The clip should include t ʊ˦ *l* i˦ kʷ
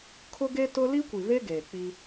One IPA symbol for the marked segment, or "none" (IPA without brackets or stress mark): l